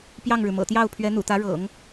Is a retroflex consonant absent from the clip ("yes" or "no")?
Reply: no